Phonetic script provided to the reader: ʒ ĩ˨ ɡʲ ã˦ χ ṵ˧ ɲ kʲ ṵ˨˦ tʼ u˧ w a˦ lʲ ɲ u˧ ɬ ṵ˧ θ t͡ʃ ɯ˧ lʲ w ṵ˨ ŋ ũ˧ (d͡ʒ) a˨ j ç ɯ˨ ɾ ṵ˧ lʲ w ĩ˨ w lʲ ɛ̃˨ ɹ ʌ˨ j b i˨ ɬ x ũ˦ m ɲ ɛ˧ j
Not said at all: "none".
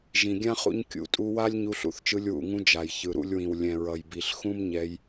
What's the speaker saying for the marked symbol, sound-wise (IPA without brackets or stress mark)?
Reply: d͡ʒ